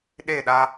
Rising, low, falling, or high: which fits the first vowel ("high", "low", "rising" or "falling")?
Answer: falling